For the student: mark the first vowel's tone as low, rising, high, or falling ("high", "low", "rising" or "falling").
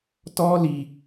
high